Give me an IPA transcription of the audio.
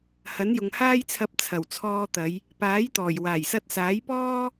hɐ˨˥njʊ˨ŋ haː˥jt͡sʰɐ˧p̚ t͡sʰɐ˨˩wt͡sʰɔː˧t̪ɐ˨˧j | paː˨˥jt̪ɔː˨˩j waː˨˩jsɐ˧t̚saː˨˥jpɔː˥

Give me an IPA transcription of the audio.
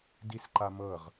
disǃamɤʁ

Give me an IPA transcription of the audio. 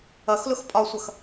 ʌxlʊx pʼɒsʷʌx

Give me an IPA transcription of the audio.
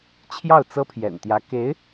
t͡ɕʰjɑ˥˩ʊ̯t͡sɤ˥pʰjɛ̰˨˩nt̪jä˧˥ ke˧˥ɪ̯

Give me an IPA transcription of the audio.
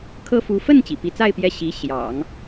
kʰɤ˥fu˧˥ fə˥˩n t͡ɕḭ˨˩pi˧˥t͡sa˥˧ɪ̯ pjɛ˥˩ ɕi˧˥ɕjɑ̰˨˩˦ŋ

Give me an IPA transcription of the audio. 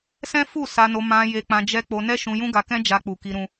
sɛ̃˦fu˦˨ sa˧no˧ mã˧ je˧k͡pã˧d͡ʒɛ˦ k͡po˧nɛ˦ʃũ˧ jũ˦ɡa˧kɛ̃˦ d͡ʒa˧k͡pu˨ki˧ɾũ˧

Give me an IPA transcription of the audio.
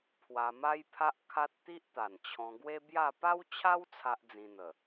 pʰwa˧ma˦jpʰa˦ʔkʰa˦t̚ t̪i˦ʔt̪a˨˩nt͡ɕʰɔ̃˧ɡwe˦ bja˥˧ pa˦wt͡ɕʰa˦w t͡sʰa˦ʔd͡zĩ˧n̪ə˨˩

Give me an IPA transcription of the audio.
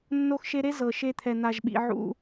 nːo˦xʃe˦ ɾe˦ zɤ˨ʃe˧t̪ʰɛ˨ n̪a˨ʒɓḭ˨ ʕṵ˧

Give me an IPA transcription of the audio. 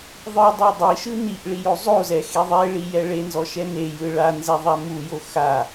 ðˤɯdˤɤ dˤiʃɯ niʔ ɭijozˤozɛ xeðˤeɭi jɛɭenzɔ ʃɛnejɯ ɭanzɛ ðˤamujo xa

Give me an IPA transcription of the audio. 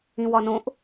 ĩwɒnõʔ

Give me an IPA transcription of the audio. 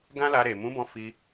ɡã˦la˧ɾe˨ mũ˨˦bɔ̃˧ fi˧

